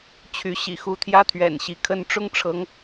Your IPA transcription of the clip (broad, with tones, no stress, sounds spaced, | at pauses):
t͡ɕʰ y˨˦ ɕ ḭ˨˩ x u˨˦ t̪ʰ j ä˦ t̪ʰ ɥ ɛ̰˨˩ n ɕ i˨˦ kʰ ə˦ n ʈ͡ʂ ʊ˦ ŋ ʈ͡ʂʰ ɤ˨˦ ŋ